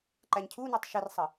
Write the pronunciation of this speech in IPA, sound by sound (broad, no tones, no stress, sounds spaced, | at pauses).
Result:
ǃ æ ɲ cʰ u n u tˤ ʃ ɪ r sˤ ə